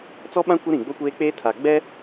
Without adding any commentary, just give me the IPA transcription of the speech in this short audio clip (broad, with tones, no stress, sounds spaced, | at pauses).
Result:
t͡s ɔ˦ ɓ ã˦ kʷ ɪ˦ ɾ ĩ˨ ɡ͡b o˦ kʷ eː˦ k͡p eː˦ tʰ aː˨ ɡ͡b ɛ˦